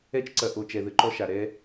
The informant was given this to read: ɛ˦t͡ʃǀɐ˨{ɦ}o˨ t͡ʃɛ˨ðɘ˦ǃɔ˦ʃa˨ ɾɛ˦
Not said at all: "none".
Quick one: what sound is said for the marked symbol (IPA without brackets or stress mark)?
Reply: ʔ